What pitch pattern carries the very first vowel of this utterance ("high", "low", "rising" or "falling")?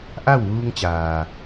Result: falling